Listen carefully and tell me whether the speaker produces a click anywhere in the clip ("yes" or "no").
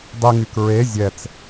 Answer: no